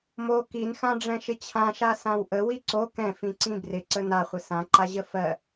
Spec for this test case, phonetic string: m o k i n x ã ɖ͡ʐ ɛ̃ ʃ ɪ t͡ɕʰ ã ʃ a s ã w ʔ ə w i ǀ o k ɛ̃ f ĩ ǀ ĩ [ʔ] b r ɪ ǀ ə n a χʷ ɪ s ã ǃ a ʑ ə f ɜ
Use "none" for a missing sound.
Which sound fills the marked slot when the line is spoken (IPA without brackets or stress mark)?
none